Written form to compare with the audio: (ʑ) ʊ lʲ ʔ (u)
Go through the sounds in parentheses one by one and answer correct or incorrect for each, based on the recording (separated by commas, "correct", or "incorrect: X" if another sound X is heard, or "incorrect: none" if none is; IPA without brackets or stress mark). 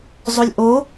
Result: incorrect: zˤ, incorrect: o